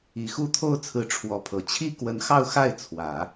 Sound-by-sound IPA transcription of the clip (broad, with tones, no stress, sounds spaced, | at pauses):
i˨˩ x u˥˧ t̪ʰ o˥˩ ʊ̯ t͡sʰ ɹ̩˧˥ ʈ͡ʂʰ w ɔ˧˥ pʰ ɤ˨˩ t͡ɕʰ i˥ k w ə˧˥ n x ɑ˥˧ ʊ̯ x a˥˩ ɪ̯ t͡sʰ w ä˨˩˦